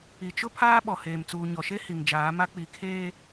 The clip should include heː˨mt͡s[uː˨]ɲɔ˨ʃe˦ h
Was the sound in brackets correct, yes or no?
yes